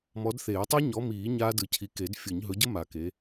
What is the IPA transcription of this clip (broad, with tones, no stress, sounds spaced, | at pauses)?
m ɔ˨˦ d θ eː˨˩˦ tˤ e˦˥ ɲ ɔ˨˦ m iː˨˩˦ ɲ aː˦˥ d ɯ˨˩˦ cʰ i˨˦ k e˨˩˦ d fʲ ɯ˨˩˦ ɲ ɦ ɵ˨˦ ɟ ə˦˥ m a˨˩˦ k e˨˦